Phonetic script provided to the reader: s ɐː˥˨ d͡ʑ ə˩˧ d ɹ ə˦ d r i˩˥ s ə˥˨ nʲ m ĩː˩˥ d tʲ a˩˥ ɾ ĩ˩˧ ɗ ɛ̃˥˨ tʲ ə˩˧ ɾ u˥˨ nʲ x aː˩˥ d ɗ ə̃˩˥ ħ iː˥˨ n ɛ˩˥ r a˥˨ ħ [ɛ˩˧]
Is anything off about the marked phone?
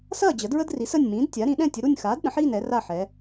no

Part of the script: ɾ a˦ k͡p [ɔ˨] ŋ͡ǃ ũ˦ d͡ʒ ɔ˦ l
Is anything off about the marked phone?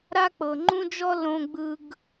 yes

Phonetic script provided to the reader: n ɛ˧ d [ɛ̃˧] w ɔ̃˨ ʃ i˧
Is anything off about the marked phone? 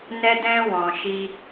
no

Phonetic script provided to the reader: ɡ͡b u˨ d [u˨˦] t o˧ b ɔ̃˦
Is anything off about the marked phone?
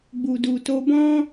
yes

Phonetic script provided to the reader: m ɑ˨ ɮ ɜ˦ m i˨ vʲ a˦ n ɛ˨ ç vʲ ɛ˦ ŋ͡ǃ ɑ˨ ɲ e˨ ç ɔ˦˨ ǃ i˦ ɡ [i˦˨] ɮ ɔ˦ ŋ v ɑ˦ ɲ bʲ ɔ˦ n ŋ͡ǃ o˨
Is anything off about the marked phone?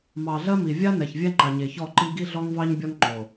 yes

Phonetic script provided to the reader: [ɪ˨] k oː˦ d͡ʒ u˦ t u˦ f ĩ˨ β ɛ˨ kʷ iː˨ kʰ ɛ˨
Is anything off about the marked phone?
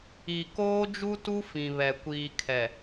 yes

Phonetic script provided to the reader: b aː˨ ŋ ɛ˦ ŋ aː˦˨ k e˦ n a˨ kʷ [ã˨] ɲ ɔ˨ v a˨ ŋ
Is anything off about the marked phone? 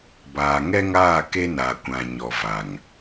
no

